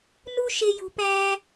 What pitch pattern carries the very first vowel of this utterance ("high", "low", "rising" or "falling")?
high